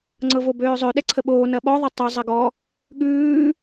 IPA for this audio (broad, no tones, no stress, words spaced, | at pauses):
ŋ͡ǀɤvobøːzˤø ɗɛǀʰəɓoː nɐɓɔ ðˤɤtˤø zˤɐɡɔ | ɠʉː